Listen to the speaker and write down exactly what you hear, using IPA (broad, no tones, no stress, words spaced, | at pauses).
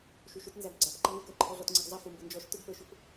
ʃuʃʊtnzæɡ ɡ͡ǀæp ǃʌnukə˞ ǃʰɔɮɔtŋ͡ǀiɡzˤʌ fumbʊnd͡ʒɔʃ tʊɡpə˞ʃʊp